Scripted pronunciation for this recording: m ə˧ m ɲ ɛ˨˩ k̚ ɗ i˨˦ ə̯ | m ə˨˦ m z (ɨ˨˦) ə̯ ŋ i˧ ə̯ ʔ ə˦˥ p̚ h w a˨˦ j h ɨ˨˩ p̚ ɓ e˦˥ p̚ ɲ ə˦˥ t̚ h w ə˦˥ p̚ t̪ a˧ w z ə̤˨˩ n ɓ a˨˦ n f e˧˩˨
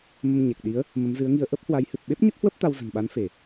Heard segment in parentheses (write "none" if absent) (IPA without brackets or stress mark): ɨ˨˦